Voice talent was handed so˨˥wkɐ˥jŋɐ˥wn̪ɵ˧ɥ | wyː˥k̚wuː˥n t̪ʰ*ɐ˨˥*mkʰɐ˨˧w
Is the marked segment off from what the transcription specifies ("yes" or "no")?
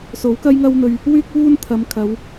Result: yes